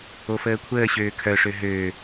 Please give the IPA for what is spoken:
o f əː kʷʰ əː ɕ øː kʰ œ ʂ ø ɦ øː

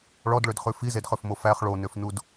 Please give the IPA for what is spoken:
ɭ ɔ d ɭ ø d χ ʉ f i z e d χ ø f m o f æ χ ɭ o n ø f n u d

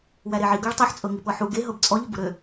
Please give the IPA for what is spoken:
w æ ɾ e ʕ i ɡ ɤ ɭ tˤ u ħ t͡sʼ ɤ ŋ i p ɤ ħ u ɡ e ɦ ɤ b t͡sʼ ɔ ʎ ʊ b ʊ ɾ ø

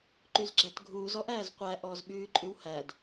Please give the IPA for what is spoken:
ǃ y z ɡ͡ǁ æ t ɡʱ uː z ɔ ʔ æː z qʷ æ ʔ ɔː z ɓ ʉː ǃʼ ʉ w h æ d

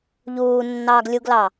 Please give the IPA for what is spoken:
ʎ uː nː ɑː ɡ lʲ u ɡ l ɑ

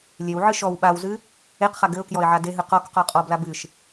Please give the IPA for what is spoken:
lʲ e w ʕ ɨ ʃ ɔ w ɓ a w z ɨ | e q χ a ɡ ɘ ʊ̯ k j ɔ ɪ̯ ʕ a d e ɦ ɨ q ɔ k q ɔ qʼ ɔ b l a b ɨ ʃ

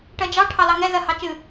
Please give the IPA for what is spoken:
ʈ ɜ d͡ʒ ɑ ʈʰ ɑ l ɑ ŋ ɛ z ɜ h ɑ t͡ʃ ɨ

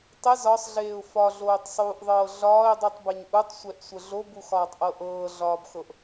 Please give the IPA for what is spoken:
tˤ ə z ɒ sˤ ɮ eː ʊ̯ f ɒ ɮ oː tˤ sˤ uː ʔ ðˤ ɤː ɮ ɒː ɪ̯ dˤ u tˤ b ɛ ɲ ʔ u tˤ sʷ ɛ ʔ sʷ ə ɮ o b u x ɒː tˤ ʔ ɤ ʔ ɤː ɮ ɒː b x ɤ ʔ

